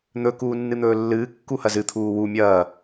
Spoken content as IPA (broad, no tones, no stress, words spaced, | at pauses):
n̪ɵ kuːnːɨn̪ɵːlːɨː kːuhɐzɨ t̪ʰuːwu mʲɐː